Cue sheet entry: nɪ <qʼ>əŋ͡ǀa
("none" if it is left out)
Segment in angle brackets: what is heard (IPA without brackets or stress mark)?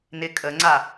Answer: kʼ